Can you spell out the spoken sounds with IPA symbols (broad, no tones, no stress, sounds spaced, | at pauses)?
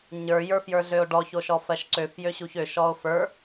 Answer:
ɲ ə˞ j ə˞ f j ə˞ ɮ ø o̯ ɖ ɔ ç o ʃ ɔ f ɜ ʃ ǀ ø f j ø ɕ u ç ø ʃ ɔ o̯ f ə˞